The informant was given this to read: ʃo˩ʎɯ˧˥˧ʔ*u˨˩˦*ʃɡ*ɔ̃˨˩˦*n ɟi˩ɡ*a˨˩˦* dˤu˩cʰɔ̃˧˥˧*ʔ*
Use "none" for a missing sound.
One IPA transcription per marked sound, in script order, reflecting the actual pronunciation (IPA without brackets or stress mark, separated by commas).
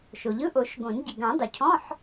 o˨˩˦, õ˨˩˦, ã˨˩˦, ħ